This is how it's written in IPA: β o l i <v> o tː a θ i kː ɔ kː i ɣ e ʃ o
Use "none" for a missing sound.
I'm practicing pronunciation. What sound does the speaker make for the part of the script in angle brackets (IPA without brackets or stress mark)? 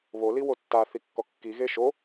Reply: w